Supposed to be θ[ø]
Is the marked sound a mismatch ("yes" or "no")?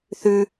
yes